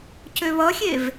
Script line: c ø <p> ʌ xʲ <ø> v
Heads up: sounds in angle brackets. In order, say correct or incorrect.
incorrect, incorrect

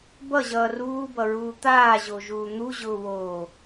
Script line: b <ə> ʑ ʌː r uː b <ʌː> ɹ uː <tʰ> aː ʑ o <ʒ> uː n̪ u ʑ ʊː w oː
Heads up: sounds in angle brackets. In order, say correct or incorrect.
incorrect, incorrect, incorrect, correct

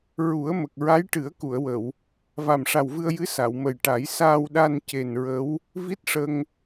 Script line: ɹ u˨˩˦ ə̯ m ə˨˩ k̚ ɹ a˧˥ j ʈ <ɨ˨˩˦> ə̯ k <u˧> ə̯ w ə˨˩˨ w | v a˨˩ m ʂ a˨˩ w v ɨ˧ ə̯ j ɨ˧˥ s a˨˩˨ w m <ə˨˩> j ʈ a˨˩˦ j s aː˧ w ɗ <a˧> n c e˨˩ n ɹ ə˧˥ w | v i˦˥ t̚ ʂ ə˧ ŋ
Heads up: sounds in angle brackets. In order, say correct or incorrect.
correct, incorrect, correct, correct

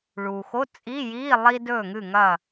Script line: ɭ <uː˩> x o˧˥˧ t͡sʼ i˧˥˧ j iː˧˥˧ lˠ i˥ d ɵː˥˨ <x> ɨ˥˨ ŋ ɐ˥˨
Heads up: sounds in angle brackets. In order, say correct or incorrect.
correct, incorrect

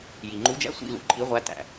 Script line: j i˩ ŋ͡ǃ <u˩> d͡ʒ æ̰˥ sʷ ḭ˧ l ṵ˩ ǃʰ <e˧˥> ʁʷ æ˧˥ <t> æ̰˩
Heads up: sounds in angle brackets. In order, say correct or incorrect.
incorrect, incorrect, correct

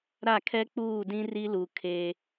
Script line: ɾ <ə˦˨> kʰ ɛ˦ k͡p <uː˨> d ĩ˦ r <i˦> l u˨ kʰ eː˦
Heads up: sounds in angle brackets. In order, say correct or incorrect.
incorrect, incorrect, correct

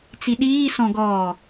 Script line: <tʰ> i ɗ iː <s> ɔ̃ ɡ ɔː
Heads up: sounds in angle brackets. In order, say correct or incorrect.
incorrect, correct

